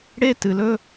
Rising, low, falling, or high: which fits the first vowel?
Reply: high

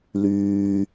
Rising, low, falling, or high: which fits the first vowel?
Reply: high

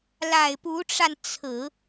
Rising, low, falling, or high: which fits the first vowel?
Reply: low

